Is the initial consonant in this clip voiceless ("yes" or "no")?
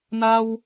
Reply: no